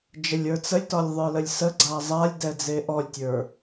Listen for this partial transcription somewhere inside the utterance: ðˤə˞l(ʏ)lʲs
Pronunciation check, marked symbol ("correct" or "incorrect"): incorrect